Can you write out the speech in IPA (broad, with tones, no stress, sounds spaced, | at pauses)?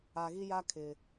a˨ ɣ i˦ j a˦ kʰ ɪ˨